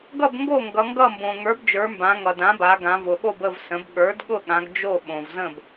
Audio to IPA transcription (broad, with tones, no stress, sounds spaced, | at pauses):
ɡ ʌ˥˩ b ŋ ɡ o˥˩ ŋ ɡ ʌ˩˧ ŋ ɡ ʌ˥˩ m b õ˩ ŋ ə˞˩˥ b d͡ʒ ə˞˩˧ m b ã˩˧ ŋ ʌ˩ d ã˩˥ b a˩˧ ɡ ã˩˧ v ʊ˩ ɠ o˥˩ b ə˥˩ v s ə̃˩˥ b ɠ ə˞˩˥ d ɠ ʊ˥˩ ɠ ã˩˧ ɡ d͡ʒ o˥˩ ɓ õ˩ v z ə̃˥˩ b